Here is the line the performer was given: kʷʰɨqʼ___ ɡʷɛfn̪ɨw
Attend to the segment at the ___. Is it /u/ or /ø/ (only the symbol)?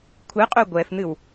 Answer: ø